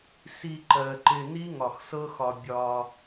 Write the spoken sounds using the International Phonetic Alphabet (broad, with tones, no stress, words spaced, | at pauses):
si˧ǃɜ˨ǃɪ˧ ni˦ŋɒ˨xsɤ˦xɒ˧ bʲɒ˧